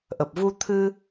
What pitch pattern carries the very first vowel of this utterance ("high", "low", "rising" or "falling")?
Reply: low